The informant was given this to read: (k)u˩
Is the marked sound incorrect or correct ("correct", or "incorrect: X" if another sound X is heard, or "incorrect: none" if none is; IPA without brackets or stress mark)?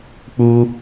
incorrect: k͡p